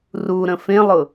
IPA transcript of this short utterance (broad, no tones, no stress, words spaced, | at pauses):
ruɾə̃ fẽlˠʊ